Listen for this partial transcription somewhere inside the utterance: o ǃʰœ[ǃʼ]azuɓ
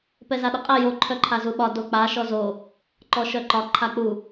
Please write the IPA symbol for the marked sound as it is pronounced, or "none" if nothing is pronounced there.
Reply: ǃʰ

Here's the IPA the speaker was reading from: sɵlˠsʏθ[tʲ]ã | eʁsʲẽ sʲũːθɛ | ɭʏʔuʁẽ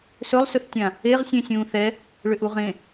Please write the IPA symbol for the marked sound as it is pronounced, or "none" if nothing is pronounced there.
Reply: tʲ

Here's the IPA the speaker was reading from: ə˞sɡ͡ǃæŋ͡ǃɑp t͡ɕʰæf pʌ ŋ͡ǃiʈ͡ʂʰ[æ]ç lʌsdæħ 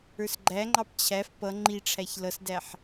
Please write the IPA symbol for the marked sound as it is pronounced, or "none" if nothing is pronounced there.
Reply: æ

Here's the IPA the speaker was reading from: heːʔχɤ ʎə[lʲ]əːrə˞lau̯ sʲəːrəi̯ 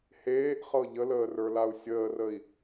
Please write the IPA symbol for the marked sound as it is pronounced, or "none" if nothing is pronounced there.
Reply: l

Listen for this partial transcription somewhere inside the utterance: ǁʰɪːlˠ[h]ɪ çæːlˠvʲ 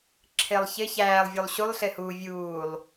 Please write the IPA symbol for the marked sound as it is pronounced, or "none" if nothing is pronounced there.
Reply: ç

